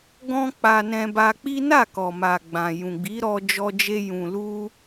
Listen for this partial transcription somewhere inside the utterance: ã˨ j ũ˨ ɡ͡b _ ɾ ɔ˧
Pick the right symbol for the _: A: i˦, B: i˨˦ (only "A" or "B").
B